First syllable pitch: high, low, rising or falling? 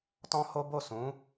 high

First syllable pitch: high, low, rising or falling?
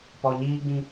low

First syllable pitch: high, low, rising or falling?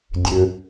low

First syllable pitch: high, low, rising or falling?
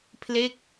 falling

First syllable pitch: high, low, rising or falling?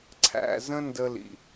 low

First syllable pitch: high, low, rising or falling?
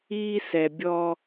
high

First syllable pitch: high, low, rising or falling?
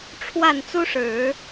falling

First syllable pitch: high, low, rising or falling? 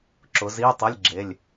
rising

